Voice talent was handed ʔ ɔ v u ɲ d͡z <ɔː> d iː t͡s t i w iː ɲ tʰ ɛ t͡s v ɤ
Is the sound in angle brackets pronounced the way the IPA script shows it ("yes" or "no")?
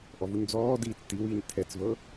yes